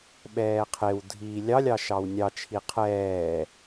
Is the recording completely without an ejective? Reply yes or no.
yes